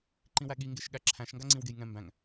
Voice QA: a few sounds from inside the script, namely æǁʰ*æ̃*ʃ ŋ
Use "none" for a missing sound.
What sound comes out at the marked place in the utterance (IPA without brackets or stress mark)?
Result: æ̃